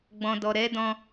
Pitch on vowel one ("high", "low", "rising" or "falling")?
low